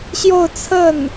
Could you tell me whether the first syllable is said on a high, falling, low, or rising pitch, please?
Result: falling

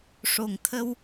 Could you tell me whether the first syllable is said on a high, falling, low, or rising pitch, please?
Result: low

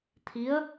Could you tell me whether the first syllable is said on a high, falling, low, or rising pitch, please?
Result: rising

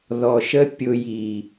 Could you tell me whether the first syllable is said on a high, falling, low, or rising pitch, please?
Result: low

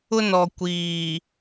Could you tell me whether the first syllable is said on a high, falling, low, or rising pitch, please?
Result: high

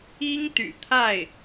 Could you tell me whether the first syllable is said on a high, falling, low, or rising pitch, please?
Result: high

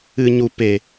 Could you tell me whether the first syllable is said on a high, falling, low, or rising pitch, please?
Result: low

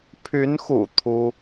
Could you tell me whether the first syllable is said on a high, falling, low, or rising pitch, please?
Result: rising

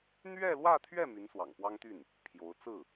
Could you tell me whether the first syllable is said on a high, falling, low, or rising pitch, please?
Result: falling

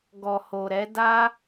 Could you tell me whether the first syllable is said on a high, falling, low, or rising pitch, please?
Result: low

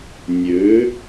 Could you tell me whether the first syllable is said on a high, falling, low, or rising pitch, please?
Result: rising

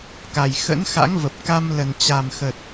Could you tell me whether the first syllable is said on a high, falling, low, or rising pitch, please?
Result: low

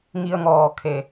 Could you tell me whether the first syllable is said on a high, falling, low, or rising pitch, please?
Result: low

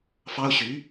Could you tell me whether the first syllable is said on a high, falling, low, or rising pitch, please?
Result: high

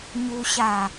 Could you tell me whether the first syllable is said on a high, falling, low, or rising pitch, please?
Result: low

